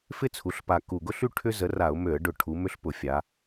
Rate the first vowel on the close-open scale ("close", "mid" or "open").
close